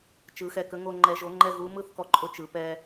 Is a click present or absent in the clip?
present